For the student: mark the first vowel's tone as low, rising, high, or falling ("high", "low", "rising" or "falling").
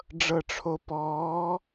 low